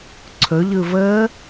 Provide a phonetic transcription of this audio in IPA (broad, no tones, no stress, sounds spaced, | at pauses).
ǀʰ ɵ ʎ ɯ v əː